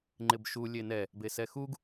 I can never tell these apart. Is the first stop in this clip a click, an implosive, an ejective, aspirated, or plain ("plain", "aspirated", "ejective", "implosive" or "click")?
click